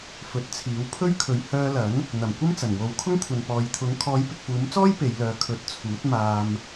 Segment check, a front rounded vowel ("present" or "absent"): present